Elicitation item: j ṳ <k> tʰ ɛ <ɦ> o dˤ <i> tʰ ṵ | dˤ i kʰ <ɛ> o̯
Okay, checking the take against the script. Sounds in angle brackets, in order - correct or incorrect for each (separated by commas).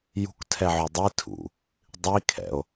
correct, incorrect, correct, incorrect